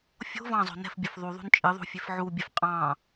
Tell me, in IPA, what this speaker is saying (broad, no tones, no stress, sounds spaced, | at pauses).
fʲ o̤ v ɑ̃ zˤ o̤ n ɛ̤ f bʲ ə˞ f ðˤ u ðˤ ṳ n t͡ʃʼ ɨ ðˤ ṳ fʲ e f ʕ u bʲ ɛ f qʼ ɑ̃